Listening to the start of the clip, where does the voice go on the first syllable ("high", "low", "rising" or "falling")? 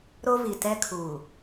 high